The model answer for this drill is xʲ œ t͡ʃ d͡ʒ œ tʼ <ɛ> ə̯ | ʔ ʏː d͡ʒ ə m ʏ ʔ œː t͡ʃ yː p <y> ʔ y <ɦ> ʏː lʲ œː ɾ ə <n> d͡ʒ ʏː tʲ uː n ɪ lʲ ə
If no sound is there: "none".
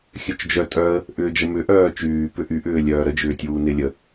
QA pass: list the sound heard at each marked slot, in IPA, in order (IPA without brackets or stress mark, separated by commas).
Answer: œ, ʏ, ʔ, none